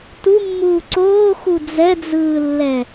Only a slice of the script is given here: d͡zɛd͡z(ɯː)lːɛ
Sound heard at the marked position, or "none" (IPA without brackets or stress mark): ɯː